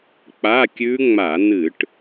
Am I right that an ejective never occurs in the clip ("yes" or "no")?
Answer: yes